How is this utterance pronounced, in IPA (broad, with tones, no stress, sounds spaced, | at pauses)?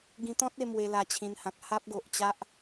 ɡ ĩ˧ t̪ ɔ̃˦ t̚ e˧ m w e˧ l a˧ t͡ɕʰ ĩ˧ n h ã˨ k̚ h a˦ p̚ ɡ o˨ ʔ t͡ɕ a˦ ʔ